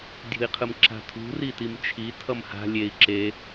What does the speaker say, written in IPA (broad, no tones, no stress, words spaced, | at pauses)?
dʲṳi̯qʰɯmǁa̤tʰṳ ritimt͡ʃʰi tʰʌmha̤ lʲei̯ ǁe